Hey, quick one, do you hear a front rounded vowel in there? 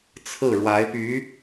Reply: yes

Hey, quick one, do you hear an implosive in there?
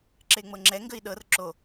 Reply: yes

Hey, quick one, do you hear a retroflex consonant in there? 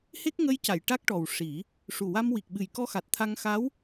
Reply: yes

